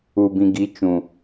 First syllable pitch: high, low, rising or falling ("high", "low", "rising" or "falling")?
low